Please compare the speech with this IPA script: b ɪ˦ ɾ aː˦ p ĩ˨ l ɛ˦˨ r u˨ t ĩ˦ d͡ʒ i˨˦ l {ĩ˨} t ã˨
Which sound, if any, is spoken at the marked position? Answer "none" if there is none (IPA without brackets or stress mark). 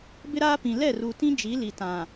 i˨